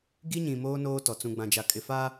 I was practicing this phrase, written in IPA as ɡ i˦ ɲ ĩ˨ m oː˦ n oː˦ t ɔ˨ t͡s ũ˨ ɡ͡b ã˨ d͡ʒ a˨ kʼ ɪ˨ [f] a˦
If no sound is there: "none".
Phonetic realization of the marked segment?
f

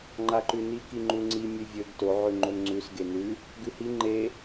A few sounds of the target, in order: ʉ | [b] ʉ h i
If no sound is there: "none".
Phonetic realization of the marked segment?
ɡ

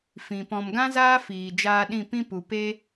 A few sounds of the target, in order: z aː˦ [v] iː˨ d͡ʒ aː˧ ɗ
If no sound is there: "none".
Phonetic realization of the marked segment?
f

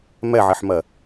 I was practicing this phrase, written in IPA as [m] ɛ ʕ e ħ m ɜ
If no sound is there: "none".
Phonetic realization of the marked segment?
m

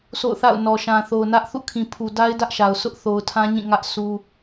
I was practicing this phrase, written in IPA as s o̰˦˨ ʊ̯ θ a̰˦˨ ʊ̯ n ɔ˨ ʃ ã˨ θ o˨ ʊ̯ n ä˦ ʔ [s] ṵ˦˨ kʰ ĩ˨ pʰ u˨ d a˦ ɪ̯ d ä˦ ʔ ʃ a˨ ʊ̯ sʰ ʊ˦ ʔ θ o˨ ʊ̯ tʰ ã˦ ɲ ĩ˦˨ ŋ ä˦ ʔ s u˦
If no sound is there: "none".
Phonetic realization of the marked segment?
θ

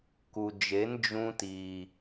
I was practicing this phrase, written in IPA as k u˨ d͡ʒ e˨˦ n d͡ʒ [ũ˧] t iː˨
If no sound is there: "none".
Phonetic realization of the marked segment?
ũ˧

